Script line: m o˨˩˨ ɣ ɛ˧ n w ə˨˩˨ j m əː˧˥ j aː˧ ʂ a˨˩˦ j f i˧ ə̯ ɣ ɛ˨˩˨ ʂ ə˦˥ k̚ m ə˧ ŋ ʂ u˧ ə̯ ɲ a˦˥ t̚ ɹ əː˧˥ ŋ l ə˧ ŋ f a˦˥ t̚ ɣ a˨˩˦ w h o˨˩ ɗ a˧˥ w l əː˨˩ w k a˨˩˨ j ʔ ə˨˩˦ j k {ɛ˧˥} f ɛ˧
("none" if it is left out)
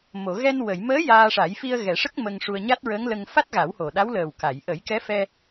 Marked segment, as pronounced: ɛ˧˥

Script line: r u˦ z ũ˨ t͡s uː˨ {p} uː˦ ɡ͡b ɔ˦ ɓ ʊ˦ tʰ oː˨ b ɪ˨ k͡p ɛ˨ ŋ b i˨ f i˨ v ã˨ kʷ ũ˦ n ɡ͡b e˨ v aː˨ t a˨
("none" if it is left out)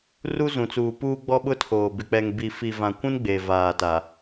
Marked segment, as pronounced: p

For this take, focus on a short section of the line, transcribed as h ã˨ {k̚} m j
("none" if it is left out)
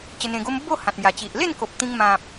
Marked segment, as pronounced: t̚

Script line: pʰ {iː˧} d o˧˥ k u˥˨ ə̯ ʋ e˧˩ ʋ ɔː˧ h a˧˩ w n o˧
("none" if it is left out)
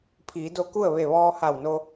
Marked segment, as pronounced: iː˩˧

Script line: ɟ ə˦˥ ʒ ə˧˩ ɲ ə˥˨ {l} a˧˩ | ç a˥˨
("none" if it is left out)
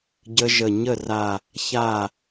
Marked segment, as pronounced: r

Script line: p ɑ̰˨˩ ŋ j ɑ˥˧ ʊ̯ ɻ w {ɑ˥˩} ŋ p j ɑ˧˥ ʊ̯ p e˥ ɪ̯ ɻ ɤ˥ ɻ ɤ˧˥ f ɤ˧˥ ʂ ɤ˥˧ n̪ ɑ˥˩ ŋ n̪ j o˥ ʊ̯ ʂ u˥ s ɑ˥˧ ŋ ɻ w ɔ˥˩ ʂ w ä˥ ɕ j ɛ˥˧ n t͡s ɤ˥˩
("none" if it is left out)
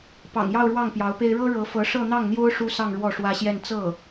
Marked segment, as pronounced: ɑ˥˩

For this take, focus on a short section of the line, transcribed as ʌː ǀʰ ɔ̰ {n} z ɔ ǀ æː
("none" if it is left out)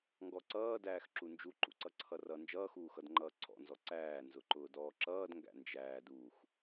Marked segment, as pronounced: n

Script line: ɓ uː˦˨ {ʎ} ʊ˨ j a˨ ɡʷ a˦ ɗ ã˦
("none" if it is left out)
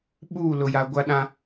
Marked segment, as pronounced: l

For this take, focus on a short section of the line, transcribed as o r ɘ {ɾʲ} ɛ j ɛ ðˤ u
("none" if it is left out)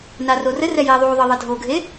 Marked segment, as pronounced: r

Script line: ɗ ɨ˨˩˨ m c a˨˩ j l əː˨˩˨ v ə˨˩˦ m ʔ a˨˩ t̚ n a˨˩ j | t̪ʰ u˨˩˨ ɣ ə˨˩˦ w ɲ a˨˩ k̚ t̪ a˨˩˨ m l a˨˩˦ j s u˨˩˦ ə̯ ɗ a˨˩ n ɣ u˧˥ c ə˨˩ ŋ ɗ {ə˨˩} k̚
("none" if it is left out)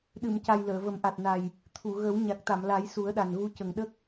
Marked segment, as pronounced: ə˦˥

